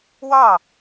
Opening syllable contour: falling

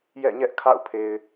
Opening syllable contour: falling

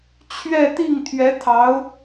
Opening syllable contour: falling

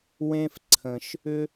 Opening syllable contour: high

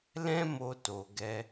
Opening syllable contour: high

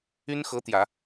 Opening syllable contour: high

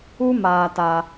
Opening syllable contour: high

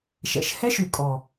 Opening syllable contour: low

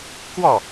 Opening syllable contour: falling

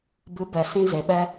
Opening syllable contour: rising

